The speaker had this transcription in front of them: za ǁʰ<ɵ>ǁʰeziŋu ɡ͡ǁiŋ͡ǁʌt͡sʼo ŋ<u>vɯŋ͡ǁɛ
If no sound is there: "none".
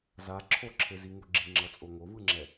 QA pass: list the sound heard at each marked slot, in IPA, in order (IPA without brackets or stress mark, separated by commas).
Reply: o, o